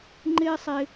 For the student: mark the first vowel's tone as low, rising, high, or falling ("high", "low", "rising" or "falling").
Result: high